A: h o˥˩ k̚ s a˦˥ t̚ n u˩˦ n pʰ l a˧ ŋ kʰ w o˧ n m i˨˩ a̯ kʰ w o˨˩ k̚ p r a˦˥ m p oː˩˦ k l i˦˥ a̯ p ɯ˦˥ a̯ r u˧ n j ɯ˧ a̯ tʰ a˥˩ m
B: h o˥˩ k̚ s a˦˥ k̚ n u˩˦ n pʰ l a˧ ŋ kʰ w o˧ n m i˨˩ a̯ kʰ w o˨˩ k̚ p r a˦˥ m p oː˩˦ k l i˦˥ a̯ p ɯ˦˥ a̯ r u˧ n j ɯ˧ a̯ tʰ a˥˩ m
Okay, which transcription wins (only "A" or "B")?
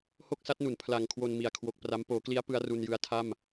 A